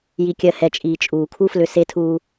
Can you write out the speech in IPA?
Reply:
ji˨kʲɜ˨hɛ˨t͡ʃʼiː˨ t͡ʃʼuː˨kʰu˦flʏ˧ se˦tʰuː˦

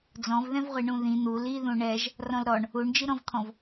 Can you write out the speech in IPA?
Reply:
d͡zɔ̃vðɛ̃vʁʷi ɳũðĩ n̪u liðũ ɳɛʒ | rɔ̃lɾɔɳ | uɳd͡ʒiɾɔ̃vt̪ʰɔ̃v

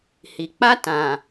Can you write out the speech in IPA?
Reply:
hi˨k͡pa˦ tã˨

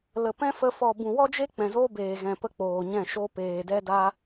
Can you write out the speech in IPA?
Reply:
lə˨pɛ̃˦fə˧ fɔ˨bũ˨wɔ˦d͡ʒe˦ k͡pɛ̃˨zo˦beː˨ɣɛ̃˨ pə˦ k͡poː˨ɲɛ̃˦˨ʃo˦ peː˨dɛ˦da˦

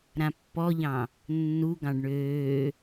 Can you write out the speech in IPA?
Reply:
ɾãpːɔʎɑ̃ | nːu ɡɑ̃ɖɳøː

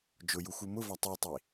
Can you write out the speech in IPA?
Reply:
d͡ʒʊju xumʊvɑ tˤitˤi

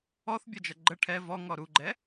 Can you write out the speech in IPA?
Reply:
ɔθbʲʌd͡ʒʌ ɡ͡ǃə ʈʰɛ vɔŋɔ ɾuɡ͡ǃɛ

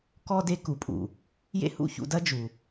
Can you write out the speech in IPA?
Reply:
kɔ˥ de˥ku˩˥pʼṵ˩ | jḛ˥hṵ˥˩çṵ˧dɐ˥ d͡ʒu˩

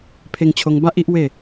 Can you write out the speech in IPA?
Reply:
pʰe˧ŋt͡ɕʰo˧ŋ ba˦ʔ i˦ʔwe˥˧

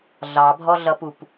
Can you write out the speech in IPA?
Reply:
ɮɑbʱɔɮʌpup

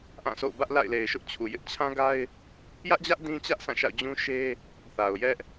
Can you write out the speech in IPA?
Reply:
ʔã˦˨so̰˦˨ʊ̯ bä˦ʔla̰˦˨ɪ̯le˨ɪ̯ʃʊ˦ʔ t͡ɕʰu˨jɪ˦ʔ t͡ɕʰã˦ ɡa˦ɪ̯ | jä˦ʔd͡ʑä˦ʔ dĩ˦t͡ɕä˦ʔ sʰã˦˨ʃa̰˦˨ʊ̯ d͡ʑũ˦ʃe˦ | θa˨ʊ̯jɛ˦ʔ

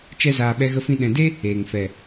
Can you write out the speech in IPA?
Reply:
t͡ʃɛ˦zaː˧ ɓɛ˧ɣə˧fĩ˧ ɗɛ̃˨de˦ | eː˨ŋ fɛ˨

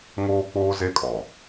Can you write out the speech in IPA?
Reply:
ŋoː˦k͡poː˦ ze˦kʼɔ˨

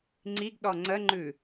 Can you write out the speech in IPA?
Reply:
ŋ͡ǀiɡɗɔ ŋ͡ǀəŋ͡ǃʉ

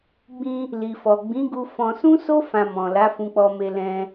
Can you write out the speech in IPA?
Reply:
ɡ͡bĩ˧ | li˨fɔ˨ ɡ͡bĩ˨˦ɡu˧fɔ̃˧ sũ˦so˦ fã˧mɔ̃˨ la˨˦fũ˧k͡pɔ˧me˧ lɛ̃˧

